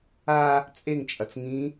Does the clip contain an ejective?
yes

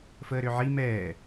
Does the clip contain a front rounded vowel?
yes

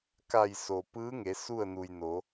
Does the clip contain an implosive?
no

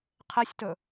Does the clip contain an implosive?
no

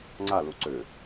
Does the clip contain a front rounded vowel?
yes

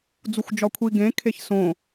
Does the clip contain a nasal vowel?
yes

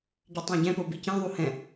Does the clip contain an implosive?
no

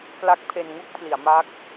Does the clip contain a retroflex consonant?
no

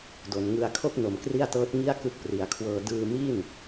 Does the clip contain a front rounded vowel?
no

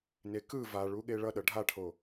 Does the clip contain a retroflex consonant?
yes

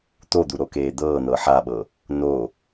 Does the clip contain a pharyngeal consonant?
yes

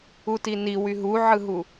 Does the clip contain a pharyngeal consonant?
yes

